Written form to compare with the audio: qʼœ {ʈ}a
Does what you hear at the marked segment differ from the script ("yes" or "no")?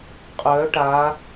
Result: no